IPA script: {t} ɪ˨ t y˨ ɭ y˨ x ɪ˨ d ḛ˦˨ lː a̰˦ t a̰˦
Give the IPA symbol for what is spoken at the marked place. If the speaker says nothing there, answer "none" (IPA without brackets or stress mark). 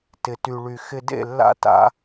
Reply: t